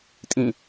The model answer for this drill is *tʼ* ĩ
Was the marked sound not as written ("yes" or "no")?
no